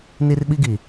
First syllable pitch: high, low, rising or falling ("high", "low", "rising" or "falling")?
high